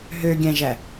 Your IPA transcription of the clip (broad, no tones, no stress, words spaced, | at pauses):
ɦøɡʲæ̃ʒæ